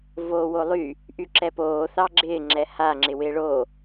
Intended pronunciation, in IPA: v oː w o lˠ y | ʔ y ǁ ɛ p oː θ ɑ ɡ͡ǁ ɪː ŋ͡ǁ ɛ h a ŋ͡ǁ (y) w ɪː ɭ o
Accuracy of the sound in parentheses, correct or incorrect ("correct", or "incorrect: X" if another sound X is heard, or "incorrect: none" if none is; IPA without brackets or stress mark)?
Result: incorrect: ɪ